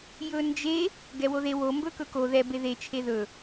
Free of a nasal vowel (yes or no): yes